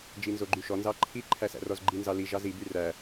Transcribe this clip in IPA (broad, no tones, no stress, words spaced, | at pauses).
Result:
d͡ʒinzoɡ͡ǃyʃɔ nzɑǃʰi ǃʰæsæ̰rɔzɡ͡ǃi nzɑli ʒɑzi byræ